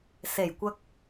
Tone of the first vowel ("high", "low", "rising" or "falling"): low